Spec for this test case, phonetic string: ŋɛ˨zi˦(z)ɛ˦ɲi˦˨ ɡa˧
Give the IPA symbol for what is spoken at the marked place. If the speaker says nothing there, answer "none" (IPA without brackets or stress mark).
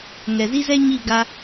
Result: z